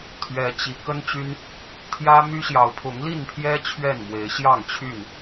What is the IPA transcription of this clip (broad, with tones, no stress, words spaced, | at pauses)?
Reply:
t̪ʰɥɛ˨˦t͡ɕi˨˦ kə˦nt͡ɕy˦n | t̪ʰjä˦my˦ ɕjɑ˨˦ʊ̯pʰʊ˨˦ŋli˥˨npʰjɛ˦ t͡ɕʰɥɛ˥˨nmwe˨˦ɪ̯ ɕjɑ˥˨ŋt͡ɕʰy˥˨n